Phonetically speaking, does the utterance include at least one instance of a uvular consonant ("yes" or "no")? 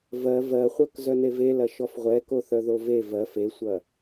yes